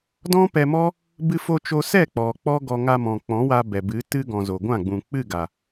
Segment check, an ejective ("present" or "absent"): absent